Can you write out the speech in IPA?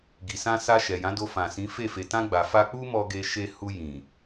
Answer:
ɡi˨sã˧sa˧ ʃɛ˨jã˨˦do˧ fã˨sĩ˨˦fe˦˨ fe˨tã˧ ɡ͡ba˨ fa˧k͡pu˦mɔ˧ ɡe˧ ʃe˧hu˧ jĩ˨

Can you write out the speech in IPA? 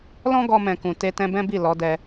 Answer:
lɔ̃˦ɡɔ˧mɛ̃˨kũ˨ te˧tɛ̃˧bɛ̃˦ bi˦˨ lɔ˨˦dɛ˧

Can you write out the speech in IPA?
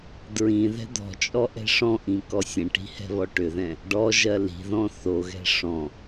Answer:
dɹĩ ðɛ̤d̪ɔ̤t͡ʃʼɔ ʔɛ̤ʂɔ̃ʔĩ kɔsʲɛ̃ʈi̤ hɛ̤βɔʈʏðɛ̃ | ɖɔʒɜ li̤ðɔ̃ θoɣɛ̤ ʂɔ̃

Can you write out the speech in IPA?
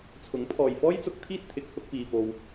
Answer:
t͡sʰʊ˨˥ŋpʰɔː˨jfɔː˥jt͡sʊ˧k̚ t̪ʰiː˥t̚t̪ʰɪ˨˥k̚hʊ˧k̚ piː˨po˨w

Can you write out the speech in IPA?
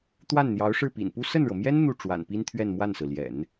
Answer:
t̪wa˥˩nn̪jɑ˧˥ʊ̯ʂɻ̩˥˩ pḭ˨˩npu˥ sə˥˩nɻɤ˩mjɛ˥n n̪u˥˩ ʈ͡ʂwa̰˨˩npi˥n t̪ʰɥɛ˥˧nmwa˥˩nsɹ̩˩ ljɛ̰˨˩˦n

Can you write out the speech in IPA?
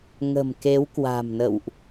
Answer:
ŋə̤˨˩m ke˨˦wkwa̤˨˩mnə̰˧˨wʔ

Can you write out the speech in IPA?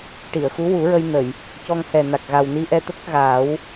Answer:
ʈi˨˩˨ə̯xu˧˥wu˨˩˦ɹə˧j nə˨˩˨j | cɔ˧ŋhɛ˨˩na˨˩k̚ ɣa˨˩wni˧ ʔɛ˧t̪ə˦˥k̚ɣaː˨˩˦w

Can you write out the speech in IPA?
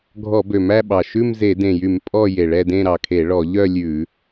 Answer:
ɡʱɔ˧˩˧bø˨˩mæ˥˧ɓɑ˨˩ ʃʉ˥˧mze˧˩˧dẽ˨˩jy˧˩˧m pʼɔ˥˧je˨˩ɭɛ˥˧dẽ˥˧ ɾɑ˨˩kʰe˧˩˧ ɭɔ˧˩˧ʎœ˥˧ lʲʉ˧˩˧

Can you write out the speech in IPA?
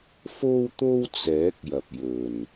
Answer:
fo˥wt̪o˥w t͡sɛː˨˥k̚jɐ˨p̚ jɵ˨n

